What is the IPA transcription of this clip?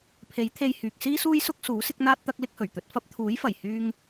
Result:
pʰ e˨˥ j t̪ʰ e˧ j h yː˨ k̚ s iː˥ s uː˥ j s ʊ˥ k̚ s uː˨˥ s ɪ˥ k̚ n̪ aː˥ t̚ t̪ ɐ˥ k̚ l ɪ˥ k̚ h ɵ˨˩ ɥ t̪ ɵ˨˥ t̚ f ɐ˥ p̚ t̪ʰ uː˨˥ j f ɐ˨˩ j h yː˧ ŋ

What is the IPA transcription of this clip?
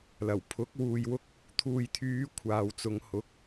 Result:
l ɐ˨˩ w pʰ ʊ˨˥ k̚ w uː˨ j w ʊ˧ k̚ | t̪ʰ uː˨ j t̪ʰ yː˨˧ kʷʰ aː˨ w t͡s ʊ˨˧ ŋ h ʊ˨˥ k̚

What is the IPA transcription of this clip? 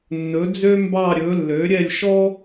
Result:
nː ɵ˨˥ d͡z ø˥ m b ɑ˥˧ ɾʲ ɵ˨˥ lː ø˨˥ ɾʲ ɛ˥˧ lʲ ʃ ɔ˥

